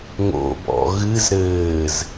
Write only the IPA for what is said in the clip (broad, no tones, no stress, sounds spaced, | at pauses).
ŋ o̰ b ɔ̰ ɣ ɨ z ɾ ɘː z